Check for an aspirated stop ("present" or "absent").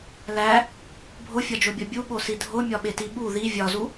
absent